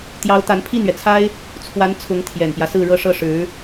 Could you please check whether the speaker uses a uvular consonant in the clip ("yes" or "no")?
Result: no